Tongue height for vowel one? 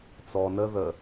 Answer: mid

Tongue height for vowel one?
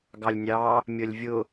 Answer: low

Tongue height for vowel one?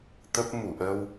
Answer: mid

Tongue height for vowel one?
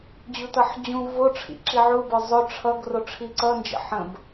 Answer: high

